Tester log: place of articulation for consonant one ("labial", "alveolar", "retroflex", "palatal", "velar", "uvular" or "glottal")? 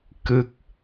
velar